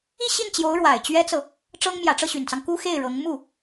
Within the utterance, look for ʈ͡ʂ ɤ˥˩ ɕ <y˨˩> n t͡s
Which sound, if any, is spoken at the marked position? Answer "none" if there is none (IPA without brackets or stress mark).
y˨˩